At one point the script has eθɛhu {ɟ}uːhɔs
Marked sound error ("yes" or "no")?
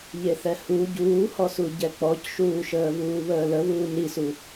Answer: no